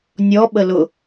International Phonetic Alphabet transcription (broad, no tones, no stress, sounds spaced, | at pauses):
nʲ ɔ ɓ ə l ʊ